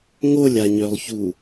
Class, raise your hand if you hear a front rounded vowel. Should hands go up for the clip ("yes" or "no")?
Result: yes